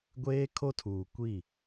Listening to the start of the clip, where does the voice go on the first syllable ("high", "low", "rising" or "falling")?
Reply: high